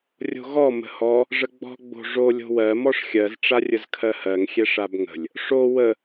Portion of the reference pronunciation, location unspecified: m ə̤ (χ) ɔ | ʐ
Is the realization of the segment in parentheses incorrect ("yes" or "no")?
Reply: yes